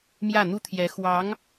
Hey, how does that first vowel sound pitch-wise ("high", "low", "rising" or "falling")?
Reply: falling